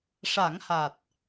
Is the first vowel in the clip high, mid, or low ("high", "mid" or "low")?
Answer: low